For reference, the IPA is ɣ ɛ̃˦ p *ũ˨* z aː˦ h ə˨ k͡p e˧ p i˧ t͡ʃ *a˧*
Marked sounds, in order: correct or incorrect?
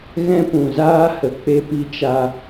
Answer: correct, correct

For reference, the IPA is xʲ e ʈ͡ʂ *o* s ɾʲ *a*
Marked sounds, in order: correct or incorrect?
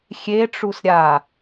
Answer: incorrect: u, correct

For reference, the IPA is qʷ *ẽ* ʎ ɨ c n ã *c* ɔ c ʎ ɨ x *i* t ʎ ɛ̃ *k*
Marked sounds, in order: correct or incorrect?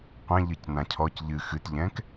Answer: incorrect: ɛ̃, incorrect: cʰ, incorrect: ɨ, correct

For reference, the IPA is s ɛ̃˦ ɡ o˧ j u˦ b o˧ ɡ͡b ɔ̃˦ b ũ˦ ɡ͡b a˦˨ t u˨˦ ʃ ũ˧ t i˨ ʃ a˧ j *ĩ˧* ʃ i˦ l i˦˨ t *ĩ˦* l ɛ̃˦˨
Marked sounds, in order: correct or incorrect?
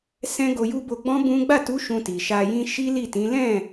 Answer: incorrect: ĩ˦, incorrect: ĩ˨˦

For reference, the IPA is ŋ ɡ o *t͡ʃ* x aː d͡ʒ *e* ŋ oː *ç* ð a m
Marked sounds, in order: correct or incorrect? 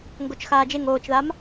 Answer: correct, correct, incorrect: t͡ʃ

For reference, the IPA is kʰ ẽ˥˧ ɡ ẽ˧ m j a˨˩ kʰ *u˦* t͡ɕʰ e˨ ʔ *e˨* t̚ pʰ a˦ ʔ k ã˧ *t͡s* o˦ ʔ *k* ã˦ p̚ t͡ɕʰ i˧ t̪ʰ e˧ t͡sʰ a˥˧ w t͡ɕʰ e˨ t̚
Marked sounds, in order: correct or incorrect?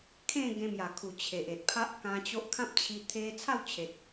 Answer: incorrect: u˨˩, correct, incorrect: t͡ɕ, incorrect: kʰ

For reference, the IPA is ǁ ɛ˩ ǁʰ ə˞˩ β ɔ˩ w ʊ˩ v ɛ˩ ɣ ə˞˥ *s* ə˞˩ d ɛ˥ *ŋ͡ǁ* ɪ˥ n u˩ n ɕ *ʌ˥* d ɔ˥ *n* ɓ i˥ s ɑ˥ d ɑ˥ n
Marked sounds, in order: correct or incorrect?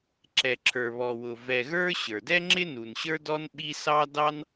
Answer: incorrect: ɕ, correct, incorrect: ə˞˥, correct

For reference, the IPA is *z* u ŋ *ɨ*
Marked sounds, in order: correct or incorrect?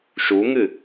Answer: incorrect: ʃ, correct

